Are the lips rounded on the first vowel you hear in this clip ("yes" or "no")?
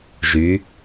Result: yes